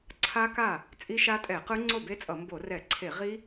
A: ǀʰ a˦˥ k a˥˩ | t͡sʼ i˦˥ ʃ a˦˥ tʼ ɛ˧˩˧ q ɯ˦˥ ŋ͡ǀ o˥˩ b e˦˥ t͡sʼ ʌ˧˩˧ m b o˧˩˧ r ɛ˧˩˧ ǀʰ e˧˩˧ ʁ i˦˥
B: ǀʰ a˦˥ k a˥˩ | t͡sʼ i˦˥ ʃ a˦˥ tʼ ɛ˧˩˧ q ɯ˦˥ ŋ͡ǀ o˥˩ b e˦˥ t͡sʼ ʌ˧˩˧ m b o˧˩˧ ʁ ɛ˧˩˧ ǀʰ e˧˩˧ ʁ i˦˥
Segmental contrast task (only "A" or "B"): A